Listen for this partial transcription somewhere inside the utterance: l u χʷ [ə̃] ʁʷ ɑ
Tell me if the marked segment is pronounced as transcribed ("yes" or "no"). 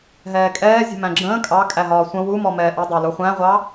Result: no